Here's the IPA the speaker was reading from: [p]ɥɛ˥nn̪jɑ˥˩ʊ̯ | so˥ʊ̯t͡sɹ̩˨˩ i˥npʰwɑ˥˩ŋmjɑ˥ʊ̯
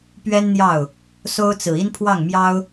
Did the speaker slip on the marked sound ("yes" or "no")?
no